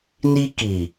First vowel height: high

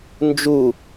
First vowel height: high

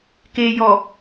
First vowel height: mid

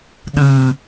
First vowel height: high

